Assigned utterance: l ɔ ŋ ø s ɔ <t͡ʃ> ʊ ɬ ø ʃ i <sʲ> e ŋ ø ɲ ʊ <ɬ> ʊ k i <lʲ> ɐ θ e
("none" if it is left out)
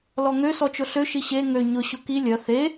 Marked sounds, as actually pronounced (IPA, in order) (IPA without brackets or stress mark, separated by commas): t͡ʃ, ɕ, ɕ, lʲ